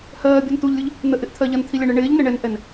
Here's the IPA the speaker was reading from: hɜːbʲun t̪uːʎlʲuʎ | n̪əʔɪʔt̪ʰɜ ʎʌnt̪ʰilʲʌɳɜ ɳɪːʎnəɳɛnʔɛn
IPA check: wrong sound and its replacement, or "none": uː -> u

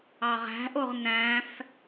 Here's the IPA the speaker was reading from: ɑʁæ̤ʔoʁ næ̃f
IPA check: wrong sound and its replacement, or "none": none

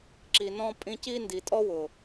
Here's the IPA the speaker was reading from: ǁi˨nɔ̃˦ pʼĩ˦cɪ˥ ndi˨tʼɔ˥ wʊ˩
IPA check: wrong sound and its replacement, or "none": ɪ˥ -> i˥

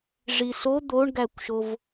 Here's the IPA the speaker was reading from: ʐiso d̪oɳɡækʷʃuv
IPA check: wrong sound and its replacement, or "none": u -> o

